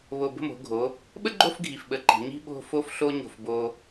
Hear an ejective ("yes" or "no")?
no